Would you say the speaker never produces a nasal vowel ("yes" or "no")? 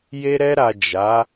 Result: yes